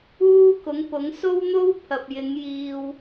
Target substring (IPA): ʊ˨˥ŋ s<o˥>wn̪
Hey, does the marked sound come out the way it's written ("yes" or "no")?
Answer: yes